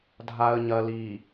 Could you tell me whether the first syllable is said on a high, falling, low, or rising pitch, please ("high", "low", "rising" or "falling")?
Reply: low